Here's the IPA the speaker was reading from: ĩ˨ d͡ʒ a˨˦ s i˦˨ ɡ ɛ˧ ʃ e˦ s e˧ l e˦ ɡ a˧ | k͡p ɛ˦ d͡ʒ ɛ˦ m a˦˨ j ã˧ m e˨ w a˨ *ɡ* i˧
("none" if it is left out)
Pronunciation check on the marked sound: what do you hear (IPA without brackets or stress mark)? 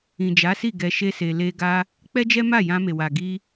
ɡ